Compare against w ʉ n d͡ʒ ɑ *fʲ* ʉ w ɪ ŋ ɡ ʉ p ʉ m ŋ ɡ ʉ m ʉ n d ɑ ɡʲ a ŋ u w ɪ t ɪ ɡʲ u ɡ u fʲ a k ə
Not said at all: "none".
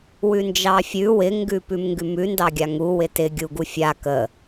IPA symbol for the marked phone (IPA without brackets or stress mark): fʲ